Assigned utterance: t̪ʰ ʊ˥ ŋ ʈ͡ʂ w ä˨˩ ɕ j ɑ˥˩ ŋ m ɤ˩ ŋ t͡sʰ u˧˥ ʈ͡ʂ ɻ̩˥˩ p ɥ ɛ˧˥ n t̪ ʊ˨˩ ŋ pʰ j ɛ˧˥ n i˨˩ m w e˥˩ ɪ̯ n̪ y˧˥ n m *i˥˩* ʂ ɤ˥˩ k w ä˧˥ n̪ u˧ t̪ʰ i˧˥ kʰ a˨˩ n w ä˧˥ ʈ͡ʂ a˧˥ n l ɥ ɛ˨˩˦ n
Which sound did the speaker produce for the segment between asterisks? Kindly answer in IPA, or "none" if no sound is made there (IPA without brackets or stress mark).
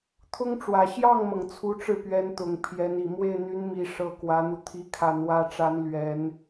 i˨˩